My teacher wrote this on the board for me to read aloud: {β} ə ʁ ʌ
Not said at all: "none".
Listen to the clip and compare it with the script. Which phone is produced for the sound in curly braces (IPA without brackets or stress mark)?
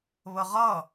β